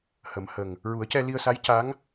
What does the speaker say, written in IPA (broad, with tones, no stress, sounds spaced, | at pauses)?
h ə˨˩˦ m h ə˨˩ ŋ | ɹ u˨˩˦ ə̯ c ɛ˧ l i˧ ə̯ s a˧˥ j c a˧˥ ŋ